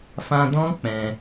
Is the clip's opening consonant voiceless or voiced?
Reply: voiceless